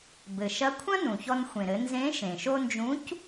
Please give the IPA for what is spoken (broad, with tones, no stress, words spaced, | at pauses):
bɘ˩ʃɐ˧˥kʷʰɐ̃˥ nũ˩çɔ˧nxʷẽ˩ ɾɘ˩˧nzẽ˧˥ ʃẽ˩ʃo˧ nd͡ʒũ˧˥c